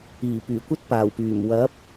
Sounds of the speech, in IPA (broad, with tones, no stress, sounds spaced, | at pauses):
iː˨˩ p yː˨˩ kʷ ɐ˥ t̚ p aː˨˩ w p yː˨˩ m w ɐ˨˥ p̚